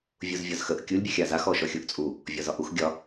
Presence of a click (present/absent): absent